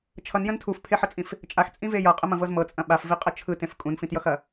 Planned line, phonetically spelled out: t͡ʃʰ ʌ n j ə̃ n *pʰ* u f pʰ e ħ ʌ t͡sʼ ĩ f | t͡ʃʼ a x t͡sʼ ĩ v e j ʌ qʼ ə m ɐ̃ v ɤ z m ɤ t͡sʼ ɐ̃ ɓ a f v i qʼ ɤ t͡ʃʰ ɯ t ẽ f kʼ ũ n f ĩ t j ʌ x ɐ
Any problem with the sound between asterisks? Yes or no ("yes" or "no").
yes